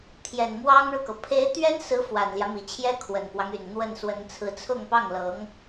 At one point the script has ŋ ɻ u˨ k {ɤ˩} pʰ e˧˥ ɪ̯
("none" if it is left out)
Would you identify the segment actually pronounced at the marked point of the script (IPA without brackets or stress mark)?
ɤ˩